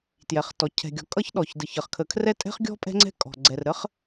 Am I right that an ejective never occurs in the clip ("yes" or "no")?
no